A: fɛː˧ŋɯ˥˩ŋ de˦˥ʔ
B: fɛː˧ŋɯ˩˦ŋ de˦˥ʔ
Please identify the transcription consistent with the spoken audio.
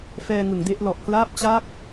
B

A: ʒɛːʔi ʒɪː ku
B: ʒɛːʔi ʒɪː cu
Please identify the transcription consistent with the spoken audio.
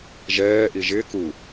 A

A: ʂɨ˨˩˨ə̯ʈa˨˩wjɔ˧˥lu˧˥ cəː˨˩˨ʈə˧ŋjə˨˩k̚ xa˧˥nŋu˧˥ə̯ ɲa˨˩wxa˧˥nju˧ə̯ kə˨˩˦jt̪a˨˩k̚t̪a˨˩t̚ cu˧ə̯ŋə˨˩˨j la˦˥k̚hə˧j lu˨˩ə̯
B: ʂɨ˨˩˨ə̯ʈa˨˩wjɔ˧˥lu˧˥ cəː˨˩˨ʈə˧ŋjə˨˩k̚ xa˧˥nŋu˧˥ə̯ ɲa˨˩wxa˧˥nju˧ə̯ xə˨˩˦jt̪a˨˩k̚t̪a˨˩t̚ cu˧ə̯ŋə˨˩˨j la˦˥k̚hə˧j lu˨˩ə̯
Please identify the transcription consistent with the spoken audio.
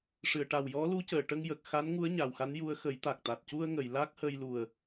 B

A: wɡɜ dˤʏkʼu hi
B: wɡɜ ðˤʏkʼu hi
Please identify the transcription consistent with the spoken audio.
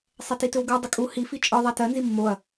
A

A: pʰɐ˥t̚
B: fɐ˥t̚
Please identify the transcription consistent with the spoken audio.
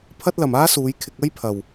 A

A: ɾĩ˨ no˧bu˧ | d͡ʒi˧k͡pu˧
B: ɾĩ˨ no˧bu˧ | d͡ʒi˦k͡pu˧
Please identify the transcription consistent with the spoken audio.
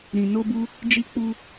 A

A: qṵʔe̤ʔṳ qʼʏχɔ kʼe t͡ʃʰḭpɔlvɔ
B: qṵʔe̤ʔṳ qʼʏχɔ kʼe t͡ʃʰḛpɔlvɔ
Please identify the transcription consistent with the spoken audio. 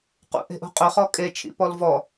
A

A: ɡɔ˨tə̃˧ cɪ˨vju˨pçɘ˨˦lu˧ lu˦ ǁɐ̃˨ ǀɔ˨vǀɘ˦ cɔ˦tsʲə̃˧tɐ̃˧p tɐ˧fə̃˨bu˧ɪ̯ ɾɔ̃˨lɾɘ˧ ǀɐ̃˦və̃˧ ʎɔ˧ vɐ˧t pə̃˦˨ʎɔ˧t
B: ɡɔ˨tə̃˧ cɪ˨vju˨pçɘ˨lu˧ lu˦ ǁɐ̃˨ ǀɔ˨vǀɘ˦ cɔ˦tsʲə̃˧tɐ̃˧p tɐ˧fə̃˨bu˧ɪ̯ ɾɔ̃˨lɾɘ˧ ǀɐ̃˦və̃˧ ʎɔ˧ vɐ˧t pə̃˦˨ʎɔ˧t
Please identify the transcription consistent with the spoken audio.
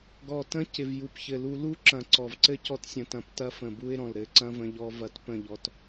B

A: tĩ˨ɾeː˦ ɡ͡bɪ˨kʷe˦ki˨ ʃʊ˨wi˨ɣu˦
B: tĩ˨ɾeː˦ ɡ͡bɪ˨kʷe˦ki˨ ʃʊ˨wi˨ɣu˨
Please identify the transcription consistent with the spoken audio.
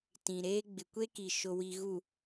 B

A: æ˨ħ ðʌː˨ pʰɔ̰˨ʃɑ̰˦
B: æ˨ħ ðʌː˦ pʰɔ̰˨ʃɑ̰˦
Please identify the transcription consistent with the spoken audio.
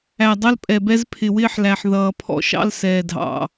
A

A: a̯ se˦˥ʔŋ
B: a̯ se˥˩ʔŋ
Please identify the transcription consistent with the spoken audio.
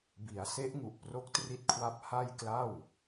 A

